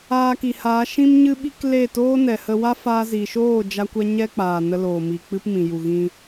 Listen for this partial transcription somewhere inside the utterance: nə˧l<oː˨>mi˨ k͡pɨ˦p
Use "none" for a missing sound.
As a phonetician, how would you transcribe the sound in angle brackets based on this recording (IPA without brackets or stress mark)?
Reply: oː˨